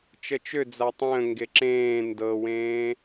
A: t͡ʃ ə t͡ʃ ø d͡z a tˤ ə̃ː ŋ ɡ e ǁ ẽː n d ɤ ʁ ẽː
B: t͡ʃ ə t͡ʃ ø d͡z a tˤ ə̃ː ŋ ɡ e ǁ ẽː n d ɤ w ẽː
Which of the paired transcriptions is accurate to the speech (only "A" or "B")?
B